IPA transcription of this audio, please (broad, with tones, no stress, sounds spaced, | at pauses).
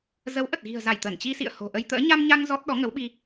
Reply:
z ə˨˦ w ʔ ə˨˩ t̚ ɣ i̤˨˩ ə̯ z a˧˩ j t̪ ə˧˩ n t͡ɕ i˧ s ḭ˧˨ ə̯ h o̤˨˩ ʔ ə˧ j t̪ ə̰ː˧˥ ɲ a˧ m ɲ a˧ ŋ z ɔ˦˥ t̚ ɗ ɔ˨˦ ŋ ə˨˦ w ɓ i˧